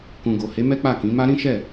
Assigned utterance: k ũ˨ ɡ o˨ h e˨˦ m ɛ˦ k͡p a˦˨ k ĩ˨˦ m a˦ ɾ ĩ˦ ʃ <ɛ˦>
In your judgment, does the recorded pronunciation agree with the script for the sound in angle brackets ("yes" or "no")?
no